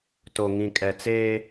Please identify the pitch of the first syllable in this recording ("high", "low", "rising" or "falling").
low